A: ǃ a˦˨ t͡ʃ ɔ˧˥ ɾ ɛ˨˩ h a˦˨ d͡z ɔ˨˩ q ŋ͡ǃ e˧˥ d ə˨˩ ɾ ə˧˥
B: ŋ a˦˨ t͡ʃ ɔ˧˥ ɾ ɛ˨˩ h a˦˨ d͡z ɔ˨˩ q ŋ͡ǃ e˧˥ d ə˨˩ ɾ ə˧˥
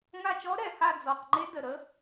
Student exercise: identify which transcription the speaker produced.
B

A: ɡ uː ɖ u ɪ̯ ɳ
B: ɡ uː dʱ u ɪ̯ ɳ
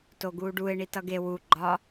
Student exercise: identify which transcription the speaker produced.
A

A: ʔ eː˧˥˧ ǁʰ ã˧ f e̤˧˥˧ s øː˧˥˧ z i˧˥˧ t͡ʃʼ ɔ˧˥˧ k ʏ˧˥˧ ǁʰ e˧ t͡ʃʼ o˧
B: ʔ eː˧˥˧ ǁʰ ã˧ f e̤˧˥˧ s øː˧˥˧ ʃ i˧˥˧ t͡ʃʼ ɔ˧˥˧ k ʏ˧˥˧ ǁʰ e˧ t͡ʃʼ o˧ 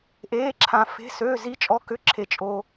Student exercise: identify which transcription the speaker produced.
A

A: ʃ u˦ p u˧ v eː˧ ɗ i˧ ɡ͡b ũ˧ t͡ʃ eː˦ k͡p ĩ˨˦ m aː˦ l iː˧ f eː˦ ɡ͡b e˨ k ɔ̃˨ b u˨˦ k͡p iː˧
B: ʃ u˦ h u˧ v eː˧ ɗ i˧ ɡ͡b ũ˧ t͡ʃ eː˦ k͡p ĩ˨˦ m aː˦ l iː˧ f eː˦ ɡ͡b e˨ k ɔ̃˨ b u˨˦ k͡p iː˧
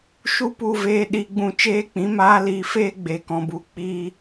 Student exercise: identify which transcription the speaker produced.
A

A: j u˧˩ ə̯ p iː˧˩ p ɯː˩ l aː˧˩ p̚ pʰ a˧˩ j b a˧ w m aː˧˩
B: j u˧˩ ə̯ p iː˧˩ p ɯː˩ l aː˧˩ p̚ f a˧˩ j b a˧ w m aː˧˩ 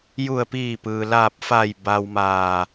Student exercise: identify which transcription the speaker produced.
B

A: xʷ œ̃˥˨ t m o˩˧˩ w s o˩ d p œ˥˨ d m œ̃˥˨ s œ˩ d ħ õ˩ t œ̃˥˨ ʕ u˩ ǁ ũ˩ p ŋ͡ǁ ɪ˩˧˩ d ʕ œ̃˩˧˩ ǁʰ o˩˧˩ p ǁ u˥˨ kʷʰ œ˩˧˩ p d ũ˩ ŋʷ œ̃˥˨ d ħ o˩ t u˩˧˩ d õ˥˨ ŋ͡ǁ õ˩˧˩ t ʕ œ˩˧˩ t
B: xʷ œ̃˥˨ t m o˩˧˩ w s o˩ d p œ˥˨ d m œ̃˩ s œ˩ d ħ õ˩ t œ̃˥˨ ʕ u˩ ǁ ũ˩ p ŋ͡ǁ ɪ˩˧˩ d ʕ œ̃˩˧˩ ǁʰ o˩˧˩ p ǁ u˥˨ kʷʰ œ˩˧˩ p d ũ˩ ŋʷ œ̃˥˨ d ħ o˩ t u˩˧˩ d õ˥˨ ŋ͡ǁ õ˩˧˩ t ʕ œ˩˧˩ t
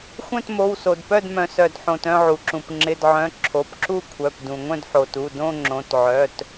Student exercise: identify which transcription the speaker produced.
B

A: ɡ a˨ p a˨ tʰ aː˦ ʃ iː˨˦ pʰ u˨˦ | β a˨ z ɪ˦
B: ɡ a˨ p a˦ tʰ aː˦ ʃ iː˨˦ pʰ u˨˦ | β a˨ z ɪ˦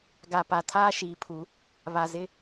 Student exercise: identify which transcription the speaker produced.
A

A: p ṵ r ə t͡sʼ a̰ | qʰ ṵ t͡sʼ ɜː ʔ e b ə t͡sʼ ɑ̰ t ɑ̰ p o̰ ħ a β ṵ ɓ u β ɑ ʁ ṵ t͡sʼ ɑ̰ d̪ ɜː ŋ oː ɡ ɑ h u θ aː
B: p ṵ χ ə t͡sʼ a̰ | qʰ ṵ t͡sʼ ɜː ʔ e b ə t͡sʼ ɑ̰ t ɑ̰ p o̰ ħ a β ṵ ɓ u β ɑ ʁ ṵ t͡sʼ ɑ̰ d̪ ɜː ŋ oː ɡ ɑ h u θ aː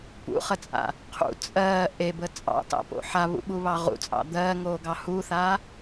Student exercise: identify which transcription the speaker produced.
B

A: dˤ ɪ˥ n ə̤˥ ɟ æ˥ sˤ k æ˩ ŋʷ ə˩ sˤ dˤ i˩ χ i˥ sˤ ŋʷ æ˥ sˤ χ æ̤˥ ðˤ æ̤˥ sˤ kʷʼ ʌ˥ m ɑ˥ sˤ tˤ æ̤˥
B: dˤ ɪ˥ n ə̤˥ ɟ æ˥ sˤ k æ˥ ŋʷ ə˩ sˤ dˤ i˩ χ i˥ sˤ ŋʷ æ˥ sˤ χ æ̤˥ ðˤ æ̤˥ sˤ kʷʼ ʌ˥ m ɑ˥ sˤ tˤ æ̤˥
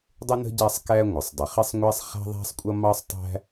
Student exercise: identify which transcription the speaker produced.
B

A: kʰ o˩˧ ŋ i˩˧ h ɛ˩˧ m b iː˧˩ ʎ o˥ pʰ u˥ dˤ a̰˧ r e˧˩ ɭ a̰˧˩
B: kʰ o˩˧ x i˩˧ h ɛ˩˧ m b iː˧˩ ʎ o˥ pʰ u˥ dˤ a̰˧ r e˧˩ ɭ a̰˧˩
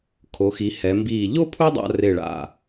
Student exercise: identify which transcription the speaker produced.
B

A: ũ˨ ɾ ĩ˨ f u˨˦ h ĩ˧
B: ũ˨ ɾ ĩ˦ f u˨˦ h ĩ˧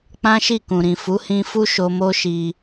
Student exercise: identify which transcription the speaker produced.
A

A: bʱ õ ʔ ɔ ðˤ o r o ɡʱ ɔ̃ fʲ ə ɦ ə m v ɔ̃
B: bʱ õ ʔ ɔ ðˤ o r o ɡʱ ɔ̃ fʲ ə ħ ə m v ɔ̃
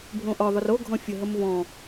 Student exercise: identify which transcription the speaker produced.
A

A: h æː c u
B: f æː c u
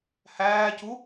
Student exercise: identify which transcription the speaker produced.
A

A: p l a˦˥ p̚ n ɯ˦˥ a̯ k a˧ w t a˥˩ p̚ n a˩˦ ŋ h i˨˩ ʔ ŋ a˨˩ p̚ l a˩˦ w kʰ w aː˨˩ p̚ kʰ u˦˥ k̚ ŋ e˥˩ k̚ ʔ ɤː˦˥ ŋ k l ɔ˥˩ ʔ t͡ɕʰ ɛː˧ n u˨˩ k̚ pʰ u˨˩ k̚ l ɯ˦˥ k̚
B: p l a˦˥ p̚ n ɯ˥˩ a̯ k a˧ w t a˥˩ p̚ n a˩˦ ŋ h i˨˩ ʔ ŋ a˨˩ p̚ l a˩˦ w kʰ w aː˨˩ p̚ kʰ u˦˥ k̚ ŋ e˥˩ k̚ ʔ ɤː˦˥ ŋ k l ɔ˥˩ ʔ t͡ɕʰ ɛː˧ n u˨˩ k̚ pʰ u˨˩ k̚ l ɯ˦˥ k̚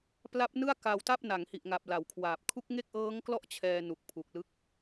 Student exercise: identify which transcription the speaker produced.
B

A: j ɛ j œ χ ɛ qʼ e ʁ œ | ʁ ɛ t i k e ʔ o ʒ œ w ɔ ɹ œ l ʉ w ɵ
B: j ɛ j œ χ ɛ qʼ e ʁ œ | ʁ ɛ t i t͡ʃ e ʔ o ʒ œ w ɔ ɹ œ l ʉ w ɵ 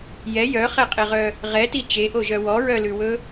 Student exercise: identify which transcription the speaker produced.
B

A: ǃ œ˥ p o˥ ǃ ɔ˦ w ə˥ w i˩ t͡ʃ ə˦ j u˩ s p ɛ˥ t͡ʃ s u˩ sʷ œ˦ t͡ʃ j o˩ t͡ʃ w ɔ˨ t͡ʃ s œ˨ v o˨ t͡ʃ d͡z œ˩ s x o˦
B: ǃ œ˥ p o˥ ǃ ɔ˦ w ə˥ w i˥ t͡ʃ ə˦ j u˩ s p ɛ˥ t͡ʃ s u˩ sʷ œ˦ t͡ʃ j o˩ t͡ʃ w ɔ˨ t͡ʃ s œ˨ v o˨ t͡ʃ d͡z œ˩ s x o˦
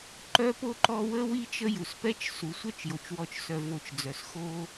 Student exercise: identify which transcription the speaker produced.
B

